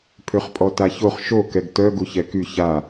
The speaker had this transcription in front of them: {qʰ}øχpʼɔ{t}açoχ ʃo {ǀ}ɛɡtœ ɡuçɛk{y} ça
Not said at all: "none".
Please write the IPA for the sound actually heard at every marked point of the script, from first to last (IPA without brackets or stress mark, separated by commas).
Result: pʰ, t, k, y